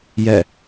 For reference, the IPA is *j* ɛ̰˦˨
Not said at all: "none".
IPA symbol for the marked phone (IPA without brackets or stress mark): j